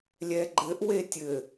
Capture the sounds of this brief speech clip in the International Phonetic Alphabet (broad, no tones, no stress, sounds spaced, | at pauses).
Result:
lʲ ɛ ɡ͡ǃ ɘ ʔ w e tʲ ɘ